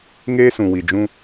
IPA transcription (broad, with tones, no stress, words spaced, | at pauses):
ŋeː˦sũ˨wi˨ d͡ʒũ˦